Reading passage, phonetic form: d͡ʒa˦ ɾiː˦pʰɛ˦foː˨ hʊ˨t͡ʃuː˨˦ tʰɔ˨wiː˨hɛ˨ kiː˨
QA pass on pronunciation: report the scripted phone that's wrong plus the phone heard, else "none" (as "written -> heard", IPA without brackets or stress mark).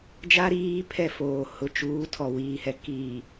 none